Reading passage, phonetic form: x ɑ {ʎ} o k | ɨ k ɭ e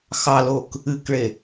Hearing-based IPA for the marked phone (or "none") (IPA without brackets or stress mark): l